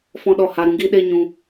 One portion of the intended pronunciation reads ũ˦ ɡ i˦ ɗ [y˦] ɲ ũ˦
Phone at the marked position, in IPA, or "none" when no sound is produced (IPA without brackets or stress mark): e˦